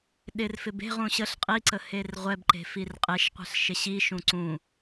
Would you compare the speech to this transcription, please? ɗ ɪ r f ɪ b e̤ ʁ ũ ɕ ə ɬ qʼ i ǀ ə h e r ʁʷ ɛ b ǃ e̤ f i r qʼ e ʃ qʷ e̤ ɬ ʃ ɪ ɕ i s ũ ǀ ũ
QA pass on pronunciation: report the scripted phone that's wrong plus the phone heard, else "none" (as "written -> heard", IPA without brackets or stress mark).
s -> ʃ